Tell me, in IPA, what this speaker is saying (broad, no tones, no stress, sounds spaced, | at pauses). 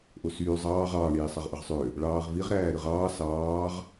ʔ o s yː zˤ ɑː ʁ ɑː ɳ iː sˤ ɑ ʁ ʔ ɯ ʁ sˤ ø | ɭ ɑː ʁ v i ʁ ɾ æː ɾ ɯ ʁ ɑː s ɑː ʁ